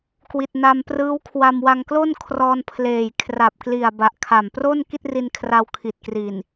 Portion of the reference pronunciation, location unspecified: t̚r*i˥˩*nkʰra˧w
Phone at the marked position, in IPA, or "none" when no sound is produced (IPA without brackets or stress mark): i˧